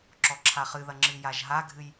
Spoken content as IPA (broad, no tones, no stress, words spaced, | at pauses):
ǁɔǁʰaχɨðɐ ŋ͡ǁɨjaʒɦaɡʱɨj